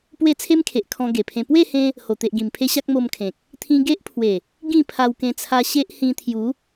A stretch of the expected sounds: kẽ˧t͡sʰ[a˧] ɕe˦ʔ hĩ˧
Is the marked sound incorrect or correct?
correct